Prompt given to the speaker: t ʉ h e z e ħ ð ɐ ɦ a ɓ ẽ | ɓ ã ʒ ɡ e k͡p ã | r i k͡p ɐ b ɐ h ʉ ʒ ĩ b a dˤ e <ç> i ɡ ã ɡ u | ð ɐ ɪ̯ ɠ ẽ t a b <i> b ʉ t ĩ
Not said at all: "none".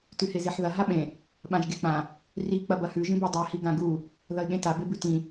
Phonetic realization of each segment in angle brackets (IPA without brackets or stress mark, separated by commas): h, e